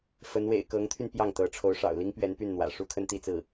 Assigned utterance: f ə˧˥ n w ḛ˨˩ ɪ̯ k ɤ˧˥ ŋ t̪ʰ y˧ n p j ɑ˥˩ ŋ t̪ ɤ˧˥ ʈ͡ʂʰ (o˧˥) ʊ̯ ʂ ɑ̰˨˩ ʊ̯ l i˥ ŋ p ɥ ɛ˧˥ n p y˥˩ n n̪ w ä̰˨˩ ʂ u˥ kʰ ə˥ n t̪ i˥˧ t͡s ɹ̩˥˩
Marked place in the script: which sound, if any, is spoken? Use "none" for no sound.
o˧˥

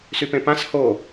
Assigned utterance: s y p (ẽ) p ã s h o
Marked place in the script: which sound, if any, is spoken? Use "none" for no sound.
ẽ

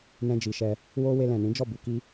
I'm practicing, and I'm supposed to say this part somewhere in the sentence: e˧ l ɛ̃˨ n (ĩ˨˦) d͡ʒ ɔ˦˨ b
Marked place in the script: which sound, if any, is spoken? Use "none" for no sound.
ĩ˨˦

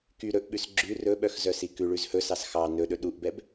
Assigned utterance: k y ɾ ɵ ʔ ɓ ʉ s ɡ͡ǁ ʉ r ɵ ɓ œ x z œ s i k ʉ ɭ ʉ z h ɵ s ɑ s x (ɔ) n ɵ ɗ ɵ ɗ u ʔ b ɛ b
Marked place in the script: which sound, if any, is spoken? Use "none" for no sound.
ɑ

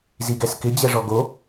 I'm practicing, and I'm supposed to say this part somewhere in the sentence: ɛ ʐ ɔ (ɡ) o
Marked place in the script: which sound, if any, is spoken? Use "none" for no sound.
ɡ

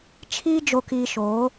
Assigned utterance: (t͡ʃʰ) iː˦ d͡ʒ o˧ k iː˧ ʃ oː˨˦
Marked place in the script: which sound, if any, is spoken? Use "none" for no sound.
t͡ʃʰ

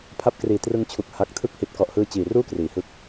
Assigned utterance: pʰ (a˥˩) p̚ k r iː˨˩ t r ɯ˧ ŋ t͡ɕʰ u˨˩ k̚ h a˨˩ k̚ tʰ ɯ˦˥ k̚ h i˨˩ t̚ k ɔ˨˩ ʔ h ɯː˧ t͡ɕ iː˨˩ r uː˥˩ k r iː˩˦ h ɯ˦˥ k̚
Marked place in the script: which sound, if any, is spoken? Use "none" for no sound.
a˦˥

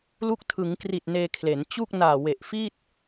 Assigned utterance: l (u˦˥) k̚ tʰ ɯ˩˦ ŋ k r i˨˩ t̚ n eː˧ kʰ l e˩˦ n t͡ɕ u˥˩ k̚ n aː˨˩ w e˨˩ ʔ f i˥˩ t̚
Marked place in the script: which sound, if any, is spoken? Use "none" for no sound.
u˦˥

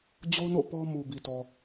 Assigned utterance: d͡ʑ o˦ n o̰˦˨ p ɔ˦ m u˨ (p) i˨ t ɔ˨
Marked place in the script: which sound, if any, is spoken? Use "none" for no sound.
b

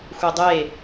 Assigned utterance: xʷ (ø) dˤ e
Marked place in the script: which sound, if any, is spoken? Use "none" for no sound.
e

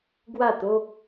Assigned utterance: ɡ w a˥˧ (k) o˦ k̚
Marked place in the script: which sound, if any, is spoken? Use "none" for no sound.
t̪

